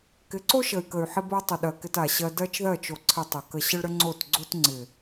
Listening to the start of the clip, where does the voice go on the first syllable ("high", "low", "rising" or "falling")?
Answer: rising